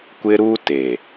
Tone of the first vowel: high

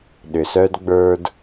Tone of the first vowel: low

